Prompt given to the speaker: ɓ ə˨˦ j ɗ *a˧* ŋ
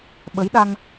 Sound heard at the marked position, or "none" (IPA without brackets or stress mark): a˧